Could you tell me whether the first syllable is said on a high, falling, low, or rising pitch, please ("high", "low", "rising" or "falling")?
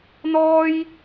high